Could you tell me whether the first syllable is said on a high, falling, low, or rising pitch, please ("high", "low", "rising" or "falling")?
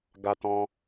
high